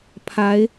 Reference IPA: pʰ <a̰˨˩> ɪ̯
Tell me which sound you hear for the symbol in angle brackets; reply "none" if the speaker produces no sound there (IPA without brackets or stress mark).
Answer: a˧˥